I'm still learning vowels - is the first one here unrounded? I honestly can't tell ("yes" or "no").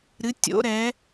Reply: yes